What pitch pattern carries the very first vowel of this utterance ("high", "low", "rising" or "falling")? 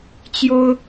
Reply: high